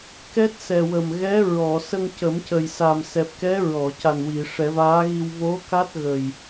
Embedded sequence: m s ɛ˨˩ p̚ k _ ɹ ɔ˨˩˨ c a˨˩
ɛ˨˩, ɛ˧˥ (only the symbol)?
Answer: ɛ˧˥